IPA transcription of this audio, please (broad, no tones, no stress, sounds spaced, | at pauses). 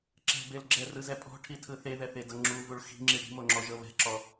ǁ ɛ̤ b e l ɡ͡ǁ ɛ r ɯ z ɛ pʼ ɔ̤ ʈʰ i tʰ ɯ θ e ð ɛ θ e d ɤ ŋ͡ǁ u v u ɭ x i̤ ŋ͡ǁ i ɽ i̤ m o ŋ͡ǁ ɔ ʒ ɤ β ɛ̤ ǁ ɔ